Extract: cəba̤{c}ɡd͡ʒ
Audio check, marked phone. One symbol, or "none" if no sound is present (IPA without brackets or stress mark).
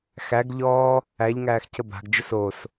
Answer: none